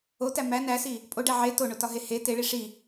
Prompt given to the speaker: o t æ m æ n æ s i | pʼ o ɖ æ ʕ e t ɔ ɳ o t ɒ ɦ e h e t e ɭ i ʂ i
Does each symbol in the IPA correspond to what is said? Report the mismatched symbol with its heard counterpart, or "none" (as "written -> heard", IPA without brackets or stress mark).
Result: ɔ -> o